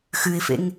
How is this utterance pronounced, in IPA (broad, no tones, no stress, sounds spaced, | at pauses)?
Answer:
x ʉ ɪ̯ f ḛ ŋ